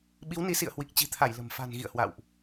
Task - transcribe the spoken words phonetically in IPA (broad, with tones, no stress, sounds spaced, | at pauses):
ɓ i˨˦ w n i˨˦ s ḭ˧˨ ə̯ h w i˨˩ k̚ t͡ɕ i̤˨˩ t̪ʰ a˧˩ j l ə̤˨˩ m f a̤˨˩ n ɣ ḭ˧˨ ə̯ h w a̰˧˨ w ʔ